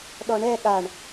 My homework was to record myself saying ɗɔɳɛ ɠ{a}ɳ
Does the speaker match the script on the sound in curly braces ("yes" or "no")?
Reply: yes